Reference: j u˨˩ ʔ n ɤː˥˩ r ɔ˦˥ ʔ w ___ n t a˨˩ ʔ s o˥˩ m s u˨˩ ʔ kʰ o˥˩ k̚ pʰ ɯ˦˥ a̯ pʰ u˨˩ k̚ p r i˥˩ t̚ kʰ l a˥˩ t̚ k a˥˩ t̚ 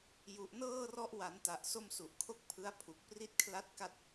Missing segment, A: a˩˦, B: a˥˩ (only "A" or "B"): A